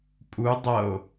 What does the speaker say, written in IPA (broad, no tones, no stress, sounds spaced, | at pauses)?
pʼ u dˤ ʌ o̯